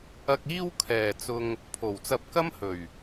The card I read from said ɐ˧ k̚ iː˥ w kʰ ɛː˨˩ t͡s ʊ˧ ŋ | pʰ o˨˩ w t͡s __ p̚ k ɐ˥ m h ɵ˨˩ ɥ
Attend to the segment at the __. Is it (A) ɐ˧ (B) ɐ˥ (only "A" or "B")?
A